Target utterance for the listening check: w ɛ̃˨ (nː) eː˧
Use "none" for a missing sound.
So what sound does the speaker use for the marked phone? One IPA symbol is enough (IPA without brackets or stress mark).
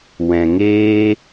ŋ